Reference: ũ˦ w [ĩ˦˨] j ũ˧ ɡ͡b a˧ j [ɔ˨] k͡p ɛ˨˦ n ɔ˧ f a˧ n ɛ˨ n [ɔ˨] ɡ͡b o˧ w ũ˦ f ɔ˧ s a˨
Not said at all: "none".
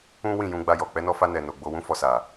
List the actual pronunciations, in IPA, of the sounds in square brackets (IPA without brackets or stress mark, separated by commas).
ĩ˦˨, ɔ˨, o˨